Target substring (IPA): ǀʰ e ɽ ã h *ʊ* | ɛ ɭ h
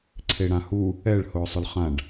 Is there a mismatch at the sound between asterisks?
yes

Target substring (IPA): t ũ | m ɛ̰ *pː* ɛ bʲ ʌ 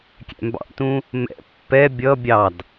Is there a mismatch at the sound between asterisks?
no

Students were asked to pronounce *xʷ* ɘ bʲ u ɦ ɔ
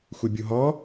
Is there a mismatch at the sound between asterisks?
no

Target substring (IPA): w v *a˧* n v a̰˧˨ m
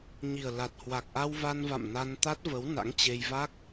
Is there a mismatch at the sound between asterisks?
no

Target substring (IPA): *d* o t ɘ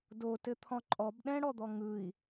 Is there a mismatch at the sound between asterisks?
no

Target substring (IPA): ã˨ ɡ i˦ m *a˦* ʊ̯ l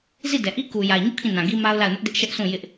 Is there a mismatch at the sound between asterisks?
no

